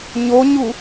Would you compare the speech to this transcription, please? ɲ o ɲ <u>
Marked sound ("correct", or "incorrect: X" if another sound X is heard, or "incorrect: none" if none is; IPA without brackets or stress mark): correct